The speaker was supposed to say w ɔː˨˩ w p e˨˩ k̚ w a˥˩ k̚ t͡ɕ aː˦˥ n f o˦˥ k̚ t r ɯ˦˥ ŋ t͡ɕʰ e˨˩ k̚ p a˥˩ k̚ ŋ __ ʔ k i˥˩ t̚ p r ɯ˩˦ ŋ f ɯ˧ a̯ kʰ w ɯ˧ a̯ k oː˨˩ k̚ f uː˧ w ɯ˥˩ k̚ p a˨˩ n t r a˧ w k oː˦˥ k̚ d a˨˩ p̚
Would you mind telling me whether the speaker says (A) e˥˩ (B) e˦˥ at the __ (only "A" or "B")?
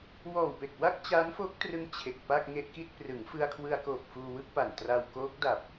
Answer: A